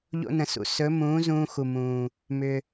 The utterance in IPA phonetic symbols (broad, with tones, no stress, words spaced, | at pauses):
ʎo̰˧nə̃˩sṵ˩˧ sɵ˩˥ mũː˩˥ zũː˧xu˩mũː˩ | mʏ˩